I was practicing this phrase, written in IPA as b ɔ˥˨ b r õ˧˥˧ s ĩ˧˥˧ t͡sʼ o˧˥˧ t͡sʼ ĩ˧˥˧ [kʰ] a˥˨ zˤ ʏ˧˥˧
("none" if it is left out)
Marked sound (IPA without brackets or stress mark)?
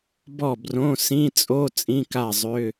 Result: k